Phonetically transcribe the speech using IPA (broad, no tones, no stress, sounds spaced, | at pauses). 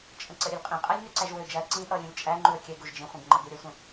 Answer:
t͡ʃʼ ə̃ ǀ ə ɾʲ ɘ lʲ qʼ ĩ qʼ æ lʲ n ø ǀ æ ʒ w ø d͡ʒ æ ə̯ ǀ ĩ ʔ ʌ lʲ ũ lʲ t͡ʃʼ æ ŋ͡ǃ u ə̯ kʲ ɛ ɡ u ʒ d͡ʒ ĩ χʷ ĩ ɡ ŋ͡ǃ ʌ ɡ u ɾʲ ə sʷ ə̃